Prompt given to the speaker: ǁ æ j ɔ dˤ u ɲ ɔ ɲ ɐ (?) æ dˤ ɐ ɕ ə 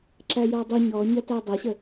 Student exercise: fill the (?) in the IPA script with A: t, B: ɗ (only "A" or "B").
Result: A